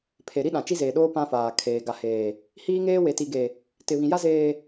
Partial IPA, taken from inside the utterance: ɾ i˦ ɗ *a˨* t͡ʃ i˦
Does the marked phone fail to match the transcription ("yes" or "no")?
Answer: yes